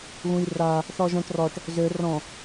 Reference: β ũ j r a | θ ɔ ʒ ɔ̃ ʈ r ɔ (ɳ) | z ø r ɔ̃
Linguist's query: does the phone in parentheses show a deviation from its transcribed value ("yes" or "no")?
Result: yes